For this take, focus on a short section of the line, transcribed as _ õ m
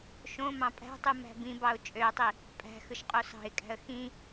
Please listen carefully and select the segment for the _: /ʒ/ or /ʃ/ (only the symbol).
ʃ